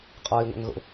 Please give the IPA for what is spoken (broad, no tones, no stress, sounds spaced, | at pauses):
qʼ ɒː i̯ ŋʷ æ̰ ŋ ɣ o̰